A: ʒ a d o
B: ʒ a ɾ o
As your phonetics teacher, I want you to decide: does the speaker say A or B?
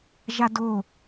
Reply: A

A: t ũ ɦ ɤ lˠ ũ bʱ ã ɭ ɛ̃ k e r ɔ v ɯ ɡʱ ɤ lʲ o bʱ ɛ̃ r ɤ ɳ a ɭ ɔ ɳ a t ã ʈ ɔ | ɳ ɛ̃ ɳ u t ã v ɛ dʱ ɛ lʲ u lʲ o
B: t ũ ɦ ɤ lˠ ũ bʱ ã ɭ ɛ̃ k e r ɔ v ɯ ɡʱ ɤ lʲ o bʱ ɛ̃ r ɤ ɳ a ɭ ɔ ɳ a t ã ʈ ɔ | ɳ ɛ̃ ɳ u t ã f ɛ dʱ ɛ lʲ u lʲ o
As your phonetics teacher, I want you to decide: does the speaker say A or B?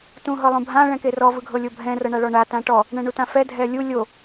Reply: B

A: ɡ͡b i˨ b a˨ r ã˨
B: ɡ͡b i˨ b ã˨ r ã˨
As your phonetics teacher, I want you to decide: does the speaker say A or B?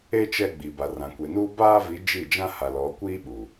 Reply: A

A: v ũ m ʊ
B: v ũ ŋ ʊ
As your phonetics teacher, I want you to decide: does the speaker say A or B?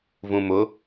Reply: A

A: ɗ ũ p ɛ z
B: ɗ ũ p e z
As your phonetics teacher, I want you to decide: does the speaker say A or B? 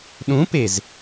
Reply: B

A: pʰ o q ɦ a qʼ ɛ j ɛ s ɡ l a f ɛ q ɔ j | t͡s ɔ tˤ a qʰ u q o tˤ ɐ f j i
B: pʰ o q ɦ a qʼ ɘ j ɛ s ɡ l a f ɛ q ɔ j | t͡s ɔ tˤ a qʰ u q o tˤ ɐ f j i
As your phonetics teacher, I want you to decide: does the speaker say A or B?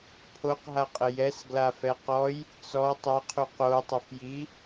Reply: B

